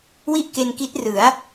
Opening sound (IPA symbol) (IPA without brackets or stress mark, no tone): w